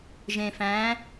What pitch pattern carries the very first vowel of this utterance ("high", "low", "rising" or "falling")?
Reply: low